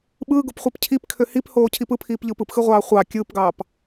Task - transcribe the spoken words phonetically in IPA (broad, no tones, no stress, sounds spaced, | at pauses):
ɓ ɯː ɡ o p χʷ e p cʰ i p kʰ ø h i p h oː cʰ i p ɯ pʰ iː p ʎ ɯː p ɯ p x ɯ ʁʷ ɑː χʷ ɑ kʲ ɯː p ɡ ɑː p